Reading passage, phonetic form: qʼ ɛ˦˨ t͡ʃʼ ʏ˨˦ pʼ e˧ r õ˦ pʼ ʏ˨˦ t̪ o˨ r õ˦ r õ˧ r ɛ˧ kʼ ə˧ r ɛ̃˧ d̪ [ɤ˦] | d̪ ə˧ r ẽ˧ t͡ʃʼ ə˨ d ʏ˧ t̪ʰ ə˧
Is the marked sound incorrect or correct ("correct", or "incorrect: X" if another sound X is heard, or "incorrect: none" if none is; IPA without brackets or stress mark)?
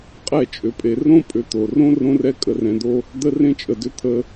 incorrect: o˦